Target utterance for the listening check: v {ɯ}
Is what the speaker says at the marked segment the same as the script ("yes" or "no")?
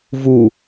no